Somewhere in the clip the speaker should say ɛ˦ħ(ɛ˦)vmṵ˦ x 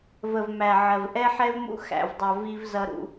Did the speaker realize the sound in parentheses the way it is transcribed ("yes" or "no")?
yes